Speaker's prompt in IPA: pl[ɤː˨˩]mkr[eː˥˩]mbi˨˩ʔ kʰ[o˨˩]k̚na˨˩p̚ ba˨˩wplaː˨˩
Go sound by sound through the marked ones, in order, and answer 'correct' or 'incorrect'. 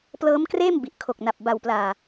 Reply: incorrect, correct, correct

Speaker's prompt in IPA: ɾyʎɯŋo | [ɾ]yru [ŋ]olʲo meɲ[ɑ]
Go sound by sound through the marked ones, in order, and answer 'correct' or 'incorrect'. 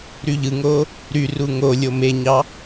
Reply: correct, correct, correct

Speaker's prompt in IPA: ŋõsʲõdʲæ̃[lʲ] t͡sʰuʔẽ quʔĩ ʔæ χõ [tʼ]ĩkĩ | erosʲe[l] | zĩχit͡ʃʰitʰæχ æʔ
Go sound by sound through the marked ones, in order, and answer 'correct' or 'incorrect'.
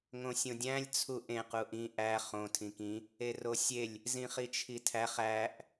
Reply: correct, incorrect, incorrect

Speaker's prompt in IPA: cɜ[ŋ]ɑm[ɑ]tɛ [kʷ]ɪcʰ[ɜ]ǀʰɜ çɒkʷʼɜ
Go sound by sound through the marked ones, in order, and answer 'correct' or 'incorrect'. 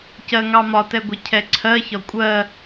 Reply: correct, incorrect, incorrect, incorrect

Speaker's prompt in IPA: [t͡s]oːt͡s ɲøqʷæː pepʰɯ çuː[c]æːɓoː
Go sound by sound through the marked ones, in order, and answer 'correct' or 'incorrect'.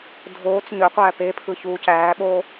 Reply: incorrect, correct

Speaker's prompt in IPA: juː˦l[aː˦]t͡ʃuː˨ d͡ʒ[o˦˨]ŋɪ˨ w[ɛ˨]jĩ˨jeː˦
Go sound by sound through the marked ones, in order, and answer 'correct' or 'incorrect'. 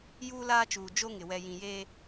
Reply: correct, incorrect, correct

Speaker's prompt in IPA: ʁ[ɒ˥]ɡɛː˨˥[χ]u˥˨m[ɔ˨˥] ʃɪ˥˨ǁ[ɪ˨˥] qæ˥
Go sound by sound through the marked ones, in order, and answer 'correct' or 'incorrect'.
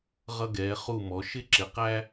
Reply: incorrect, correct, correct, correct

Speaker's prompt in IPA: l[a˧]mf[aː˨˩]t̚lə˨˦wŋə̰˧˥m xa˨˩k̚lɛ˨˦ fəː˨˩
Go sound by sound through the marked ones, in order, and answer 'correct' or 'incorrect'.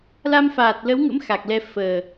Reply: correct, correct

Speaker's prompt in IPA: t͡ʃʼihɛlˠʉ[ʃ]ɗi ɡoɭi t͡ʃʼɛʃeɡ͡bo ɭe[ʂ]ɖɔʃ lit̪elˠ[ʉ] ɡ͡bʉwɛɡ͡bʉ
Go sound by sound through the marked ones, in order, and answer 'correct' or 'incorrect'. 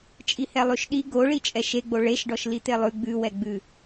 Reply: correct, incorrect, correct

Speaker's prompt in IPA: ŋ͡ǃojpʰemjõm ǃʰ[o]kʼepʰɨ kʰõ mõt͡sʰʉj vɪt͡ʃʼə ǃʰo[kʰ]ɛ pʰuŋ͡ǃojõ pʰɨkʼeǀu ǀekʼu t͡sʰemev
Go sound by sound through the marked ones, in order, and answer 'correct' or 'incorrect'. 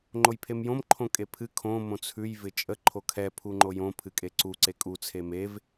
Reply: incorrect, correct

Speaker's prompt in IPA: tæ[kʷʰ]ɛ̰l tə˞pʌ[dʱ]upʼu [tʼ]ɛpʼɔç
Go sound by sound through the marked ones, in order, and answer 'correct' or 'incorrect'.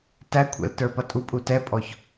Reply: correct, incorrect, incorrect

